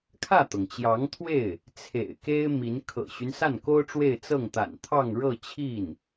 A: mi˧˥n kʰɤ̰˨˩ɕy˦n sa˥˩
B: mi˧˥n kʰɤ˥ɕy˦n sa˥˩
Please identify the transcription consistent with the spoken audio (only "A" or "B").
A